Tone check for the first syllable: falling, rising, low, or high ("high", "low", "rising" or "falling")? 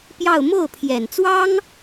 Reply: falling